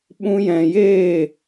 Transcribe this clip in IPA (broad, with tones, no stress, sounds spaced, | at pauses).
ɓ ũ˧ j ɛ̃˨ j eː˦˨